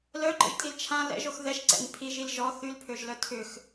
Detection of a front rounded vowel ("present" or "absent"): present